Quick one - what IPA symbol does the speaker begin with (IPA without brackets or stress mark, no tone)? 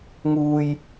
ŋ